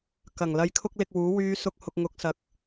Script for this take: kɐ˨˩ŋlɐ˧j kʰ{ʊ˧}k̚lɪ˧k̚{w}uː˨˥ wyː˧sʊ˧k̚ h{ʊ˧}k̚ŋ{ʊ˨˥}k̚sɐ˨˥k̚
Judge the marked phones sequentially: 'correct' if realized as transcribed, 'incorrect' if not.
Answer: incorrect, correct, correct, correct

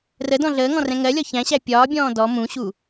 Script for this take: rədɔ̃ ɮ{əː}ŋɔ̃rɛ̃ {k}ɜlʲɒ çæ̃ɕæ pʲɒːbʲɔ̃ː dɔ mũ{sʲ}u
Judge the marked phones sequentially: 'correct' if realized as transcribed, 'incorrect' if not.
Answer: correct, incorrect, incorrect

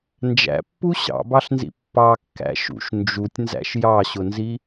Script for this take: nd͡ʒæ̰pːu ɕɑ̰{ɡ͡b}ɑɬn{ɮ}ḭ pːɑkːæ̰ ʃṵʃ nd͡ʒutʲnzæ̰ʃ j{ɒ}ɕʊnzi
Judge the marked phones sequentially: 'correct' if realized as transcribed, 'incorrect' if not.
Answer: incorrect, incorrect, incorrect

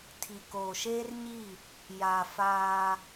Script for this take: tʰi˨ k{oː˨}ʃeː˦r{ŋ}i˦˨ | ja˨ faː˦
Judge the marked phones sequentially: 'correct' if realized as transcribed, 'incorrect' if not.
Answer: correct, incorrect

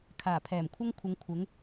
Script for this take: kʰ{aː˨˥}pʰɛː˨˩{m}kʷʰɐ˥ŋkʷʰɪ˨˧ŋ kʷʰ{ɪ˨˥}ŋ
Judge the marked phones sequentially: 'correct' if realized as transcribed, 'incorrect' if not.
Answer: incorrect, correct, correct

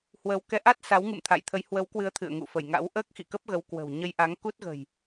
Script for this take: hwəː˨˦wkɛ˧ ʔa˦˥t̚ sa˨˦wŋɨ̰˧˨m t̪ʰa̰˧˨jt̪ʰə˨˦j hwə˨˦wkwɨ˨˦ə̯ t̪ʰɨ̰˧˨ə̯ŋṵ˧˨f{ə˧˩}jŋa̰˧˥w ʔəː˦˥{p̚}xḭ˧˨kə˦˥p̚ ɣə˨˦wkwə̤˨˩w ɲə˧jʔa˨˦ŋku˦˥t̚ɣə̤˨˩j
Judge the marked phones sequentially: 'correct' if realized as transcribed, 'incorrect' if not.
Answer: correct, incorrect

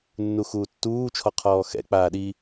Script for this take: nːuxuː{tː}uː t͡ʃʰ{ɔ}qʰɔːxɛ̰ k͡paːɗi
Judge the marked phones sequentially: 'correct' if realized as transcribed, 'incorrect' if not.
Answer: correct, correct

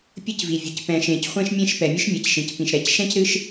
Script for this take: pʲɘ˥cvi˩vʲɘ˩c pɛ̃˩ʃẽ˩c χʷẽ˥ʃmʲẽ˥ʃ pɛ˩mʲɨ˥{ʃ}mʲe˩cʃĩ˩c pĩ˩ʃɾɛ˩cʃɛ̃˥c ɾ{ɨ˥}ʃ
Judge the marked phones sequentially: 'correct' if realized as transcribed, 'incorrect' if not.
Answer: correct, correct

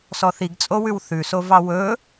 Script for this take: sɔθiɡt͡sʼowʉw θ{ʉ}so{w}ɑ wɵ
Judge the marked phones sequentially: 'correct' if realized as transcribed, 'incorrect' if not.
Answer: correct, incorrect

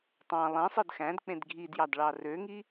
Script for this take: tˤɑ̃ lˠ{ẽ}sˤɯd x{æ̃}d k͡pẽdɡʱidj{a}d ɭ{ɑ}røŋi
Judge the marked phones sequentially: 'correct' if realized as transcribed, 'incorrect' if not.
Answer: correct, correct, incorrect, correct

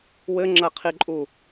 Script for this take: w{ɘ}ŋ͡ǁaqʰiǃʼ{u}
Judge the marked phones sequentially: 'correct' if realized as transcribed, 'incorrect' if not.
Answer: correct, correct

